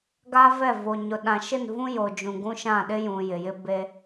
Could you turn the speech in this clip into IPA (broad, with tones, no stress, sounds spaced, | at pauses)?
ɡ a˦ v ɛ˦˨ v o˨ ɲ ʊ˨ ɗ ã˨ ʃ ɪ˦˨ n v ũ˦ j o˨ d͡ʒ ũ˨ ɡ ũ˦ ʃ ã˦˨ ɗ ɪ˦ j ũ˨ j ɪ˨ j ɪ˦ b e˦